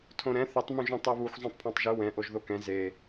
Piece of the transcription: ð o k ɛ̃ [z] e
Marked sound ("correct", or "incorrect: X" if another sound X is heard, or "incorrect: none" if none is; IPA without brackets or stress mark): correct